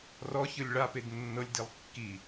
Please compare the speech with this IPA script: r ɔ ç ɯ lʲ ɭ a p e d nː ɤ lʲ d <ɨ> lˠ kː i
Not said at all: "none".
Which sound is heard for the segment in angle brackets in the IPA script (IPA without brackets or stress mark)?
i